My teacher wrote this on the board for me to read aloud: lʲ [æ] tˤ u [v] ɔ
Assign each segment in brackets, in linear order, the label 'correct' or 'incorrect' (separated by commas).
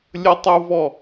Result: incorrect, correct